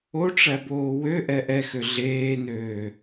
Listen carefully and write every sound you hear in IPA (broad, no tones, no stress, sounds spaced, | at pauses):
o ʈ͡ʂ æ b oː w ø ʔ ɛ ʔ ɛ x ø ɮ eː n øː